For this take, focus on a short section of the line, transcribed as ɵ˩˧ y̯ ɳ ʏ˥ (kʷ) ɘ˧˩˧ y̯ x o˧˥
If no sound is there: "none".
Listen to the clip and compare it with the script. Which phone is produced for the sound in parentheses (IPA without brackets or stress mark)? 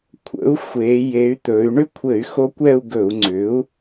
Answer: kʷʰ